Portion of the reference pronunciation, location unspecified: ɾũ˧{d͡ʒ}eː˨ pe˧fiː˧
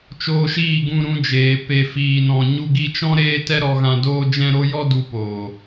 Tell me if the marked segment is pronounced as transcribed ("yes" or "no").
yes